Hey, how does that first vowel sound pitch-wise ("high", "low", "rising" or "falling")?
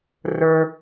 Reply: low